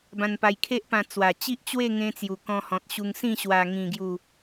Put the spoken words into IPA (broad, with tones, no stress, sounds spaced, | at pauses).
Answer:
b ã˧ n p a˧ j kʰ e˦ ʔ p ã˧ t͡s w a˨˩ t͡ɕ i˦ ʔ t͡ɕ w e˥˧ ŋ ẽ˧ t͡s j u˨˩ k ɔ̃˧ h ɔ̃˨ t̚ ɕ u˧ ŋ s ĩ˥˧ ɕ w a˨˩ ŋ ĩ˨˩ ɡ j u˨˩